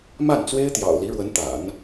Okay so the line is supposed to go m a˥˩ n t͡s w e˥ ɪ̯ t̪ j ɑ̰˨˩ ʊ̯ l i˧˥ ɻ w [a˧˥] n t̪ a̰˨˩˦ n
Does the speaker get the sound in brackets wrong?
yes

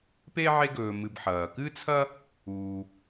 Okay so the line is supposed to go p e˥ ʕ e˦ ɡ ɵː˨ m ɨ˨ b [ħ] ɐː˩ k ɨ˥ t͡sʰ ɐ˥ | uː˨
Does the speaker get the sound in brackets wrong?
no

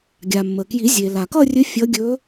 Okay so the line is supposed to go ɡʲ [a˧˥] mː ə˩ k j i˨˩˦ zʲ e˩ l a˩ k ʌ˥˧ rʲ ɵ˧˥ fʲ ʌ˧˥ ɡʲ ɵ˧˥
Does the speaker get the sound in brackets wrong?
yes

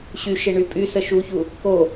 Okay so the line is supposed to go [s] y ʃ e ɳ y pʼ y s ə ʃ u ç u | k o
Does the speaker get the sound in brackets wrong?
yes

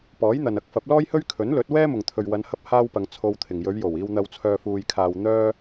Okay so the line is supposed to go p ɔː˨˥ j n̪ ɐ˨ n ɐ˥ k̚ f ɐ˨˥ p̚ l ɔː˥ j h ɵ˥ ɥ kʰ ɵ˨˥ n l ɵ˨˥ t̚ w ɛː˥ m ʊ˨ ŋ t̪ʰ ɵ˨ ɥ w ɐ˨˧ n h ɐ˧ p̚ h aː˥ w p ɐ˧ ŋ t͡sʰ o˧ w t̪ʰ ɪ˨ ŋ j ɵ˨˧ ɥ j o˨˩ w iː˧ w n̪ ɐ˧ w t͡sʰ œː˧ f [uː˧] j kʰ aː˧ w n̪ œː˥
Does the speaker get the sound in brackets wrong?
no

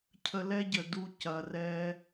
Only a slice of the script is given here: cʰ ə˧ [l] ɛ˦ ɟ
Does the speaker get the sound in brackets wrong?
no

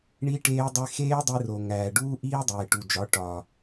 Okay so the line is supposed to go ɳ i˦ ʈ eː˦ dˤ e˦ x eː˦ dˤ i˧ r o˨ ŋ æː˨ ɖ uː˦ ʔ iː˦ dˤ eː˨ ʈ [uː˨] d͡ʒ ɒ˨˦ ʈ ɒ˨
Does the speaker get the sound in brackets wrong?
yes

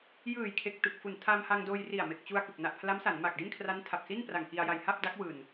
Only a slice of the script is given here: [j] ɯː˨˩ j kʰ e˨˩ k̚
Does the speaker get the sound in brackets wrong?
no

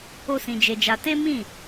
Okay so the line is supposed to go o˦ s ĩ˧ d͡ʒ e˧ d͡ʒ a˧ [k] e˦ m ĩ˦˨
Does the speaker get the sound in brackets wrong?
yes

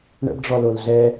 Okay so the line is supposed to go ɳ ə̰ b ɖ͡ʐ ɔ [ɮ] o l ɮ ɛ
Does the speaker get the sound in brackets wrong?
yes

